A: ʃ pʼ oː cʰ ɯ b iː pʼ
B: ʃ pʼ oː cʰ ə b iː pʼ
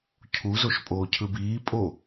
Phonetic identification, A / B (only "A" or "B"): A